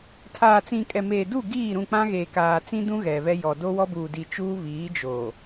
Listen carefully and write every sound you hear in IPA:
tʰ aː˨ t͡s ĩ˨ kʼ ɛ˨ m eː˨ d u˦˨ ɡ iː˦˨ ɾ ũ˦˨ k͡p ã˦ ɣ eː˨ k aː˨ t͡s ĩ˦ d ũ˦ ɣ ɛ˨ β ɛ˦ j ɔ˨ d o˦ w ɔ˦ b uː˨ d i˨ t͡ʃ uː˦ β iː˨˦ d͡ʒ o˨

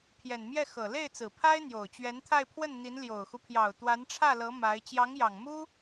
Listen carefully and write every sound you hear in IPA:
pʰ j ɛ˨˩ n m j ɛ˥˩ x ɤ˨˩ l e˥˩ ɪ̯ t͡s ɹ̩˨˩ pʰ a˥ ɪ̯ n̪ j o˨˩ ʊ̯ t͡ɕ ɥ ɛ˧˥ n t̪ʰ a˥˧ ɪ̯ pʰ w ə˥˩ n n̪ i˧˥ n l j o˨˩ ʊ̯ x u˦ pʰ j ɑ˨˩ ʊ̯ t̪ w a˧˥ n ʈ͡ʂʰ ä˥˩ l ɤ˧˥ m a˧˥ ɪ̯ t͡ɕ j ɑ˧˥ ŋ j ɑ˨˩ ŋ m u˥

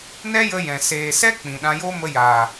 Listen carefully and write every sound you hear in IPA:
n ɛ˦ j ə˧ j ɛ̃˨ s eː˨ s ɛ˦ k͡p ĩ˨ ɗ ã˧ j o˦ m ə˧ j aː˨

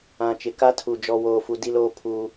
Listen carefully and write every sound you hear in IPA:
ã˨ t͡ʃ ɪ˨ k a˦ tʰ u˨ d͡ʒ ɔ˦ w oː˦ f u˦ d i˦ l oː˦ pʰ uː˦

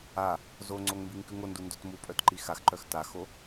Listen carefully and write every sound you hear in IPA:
a | z o ŋ͡ǀ o ŋ m b i ŋ k ʉ ŋ o n d u n d o t m u pʼ œ t ǃ i x a x ǃ œ x t a x o

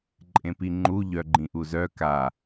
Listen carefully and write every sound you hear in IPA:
ǃʼ ẽ p i ŋ͡ǃ u ʎ œ ɡ͡ǃ ĩ ʔ u z œ k a

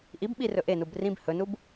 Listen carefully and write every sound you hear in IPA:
ʔ i b ɓ i r ɵ ʔ e n u b r ĩ b h ɵ n u b

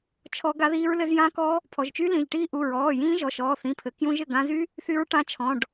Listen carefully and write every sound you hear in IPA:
t͡ʃʰ ɔ˦˥ ɡ a˦˥ ð iː˦˥ ɹ l ɘ˦˥ z j ã˦˥ k ɔ˦˥ | pʰ ɔ˩˧˩ ʒ t͡ʃ y˦˥ l ĩ˩˧˩ ʒ ʈ iː˦˥ ʔ u˩˧˩ ɹ ɔː˩˧˩ j ĩː˦˥ ʒ ɔ˩˧˩ ʃ ɔː˩˧˩ θ ĩ˩˧˩ pʰ ɘ˩˧˩ k j ũ˦˥ ʒ ɘ˩˧˩ ɡ ã˦˥ z y˦˥ | θ y˦˥ ɹ ʈ ã˦˥ t͡ʃʰ ɔ̃˩˧˩ ɖ

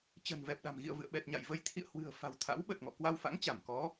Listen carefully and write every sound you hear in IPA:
t͡ɕ ə̤˨˩ n v ɛ˨˩ p̚ ɗ a̤˨˩ m ɣ ḭ˧˨ ə̯ v ɨ̰˧˨ ə̯ ɓ ɛ˨˩ t̚ ɲ a̰˧˨ j v ə˧ j t̪ʰ ḭ˧˨ ə̯ h w ɨ̤˨˩ ə̯ f a̤˨˩ w t̪ʰ a̰˧˥ w ɓ ə˨˩ t̚ ŋ ɔ̰˧˨ k w a˧ w f a̰˧˥ ŋ t͡ɕ a˧˩ m k ɔ˨˦

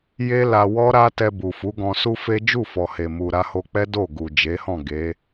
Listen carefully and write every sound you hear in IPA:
j e˦ l a˧ w ɔ˦ ɾ a˦ t ɛ˧ b u˨ f u˨˦ ɡ ɔ̃˧ s u˦ f e˦ d͡ʒ u˦˨ f ɔ˨ h e˨ m u˨ ɾ a˧ h o˧ k͡p ɛ˦ d o˦˨ ɡ u˨ d͡ʒ e˨˦ h ɔ̃˦˨ ɡ e˨˦

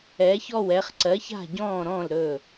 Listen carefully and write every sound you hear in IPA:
ɛ˩˧ ç ɔ˧˩ w ɛ˩˧ χ ǀ ɜ˩˧ ç a̤˧˩ ɟ ɔ̃ː˧˩ ɾ ɔ̃ː˧˩ l ɾ ɵ˧˩

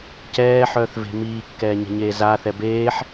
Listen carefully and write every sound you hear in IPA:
c ɛː ħ œː θ v e̤ m iː kː ɛː ɲ ɛ̤ ɲ eː z a θ ɛ b eː ħ

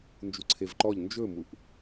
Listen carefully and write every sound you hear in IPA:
n d͡ʒ u ǀʰ e v ǃ ɔ ʎ n d͡ʒ ɵ m u ʔ

